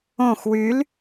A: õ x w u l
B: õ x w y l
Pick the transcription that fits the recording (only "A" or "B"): B